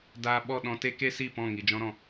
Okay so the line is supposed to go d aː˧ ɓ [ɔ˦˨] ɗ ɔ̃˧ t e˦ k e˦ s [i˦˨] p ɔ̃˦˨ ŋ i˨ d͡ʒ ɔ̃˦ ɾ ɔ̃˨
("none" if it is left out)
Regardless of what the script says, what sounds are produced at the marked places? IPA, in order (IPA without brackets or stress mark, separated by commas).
ɔ˦˨, i˦˨